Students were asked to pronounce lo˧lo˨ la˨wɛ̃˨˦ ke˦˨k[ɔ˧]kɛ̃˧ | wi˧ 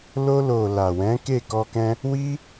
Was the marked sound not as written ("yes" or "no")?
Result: no